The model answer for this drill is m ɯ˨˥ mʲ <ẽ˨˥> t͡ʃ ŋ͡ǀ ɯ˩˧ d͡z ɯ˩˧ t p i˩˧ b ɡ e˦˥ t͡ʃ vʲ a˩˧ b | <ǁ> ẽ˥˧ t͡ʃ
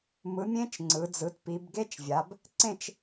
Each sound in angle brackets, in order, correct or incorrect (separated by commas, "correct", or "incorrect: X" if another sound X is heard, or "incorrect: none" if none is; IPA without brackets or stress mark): incorrect: ẽ˦˥, incorrect: ǀ